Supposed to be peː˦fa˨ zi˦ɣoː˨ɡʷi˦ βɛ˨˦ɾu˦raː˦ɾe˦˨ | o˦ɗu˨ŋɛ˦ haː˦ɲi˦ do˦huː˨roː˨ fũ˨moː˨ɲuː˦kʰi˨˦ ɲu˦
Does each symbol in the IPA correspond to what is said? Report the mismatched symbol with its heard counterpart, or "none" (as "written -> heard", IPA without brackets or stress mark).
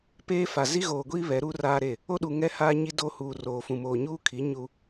none